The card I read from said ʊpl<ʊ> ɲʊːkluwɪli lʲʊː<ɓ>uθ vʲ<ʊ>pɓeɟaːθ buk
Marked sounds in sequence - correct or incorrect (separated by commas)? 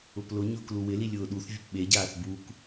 correct, incorrect, correct